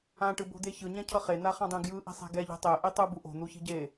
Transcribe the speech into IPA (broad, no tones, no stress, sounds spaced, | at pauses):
ã ʈ ɯ b o̤ d̪ e ç ɯ ɲ ɛ̃ cʰ ʌ χ e n̪ a χ ã dˤ ẽ ɡ j ɯ ʔ i̤ sˤ e̤ ɡ ɛ ʎ e̤ tˤ e ʔ i tˤ ɯ b u ʔ o̤ n̪ u ç i̤ ɟ e